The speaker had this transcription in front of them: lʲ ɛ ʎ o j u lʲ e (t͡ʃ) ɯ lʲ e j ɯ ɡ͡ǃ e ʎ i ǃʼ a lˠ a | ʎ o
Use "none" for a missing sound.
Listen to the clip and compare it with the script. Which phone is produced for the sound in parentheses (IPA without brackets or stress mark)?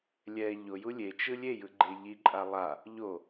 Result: t͡ʃ